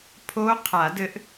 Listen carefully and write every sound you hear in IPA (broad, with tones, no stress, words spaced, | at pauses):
pʰo˦˥ qʰa˨˩˦dɘ˦˥ʔ